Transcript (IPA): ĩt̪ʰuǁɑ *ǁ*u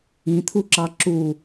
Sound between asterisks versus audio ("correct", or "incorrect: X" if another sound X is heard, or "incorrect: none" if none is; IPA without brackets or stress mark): correct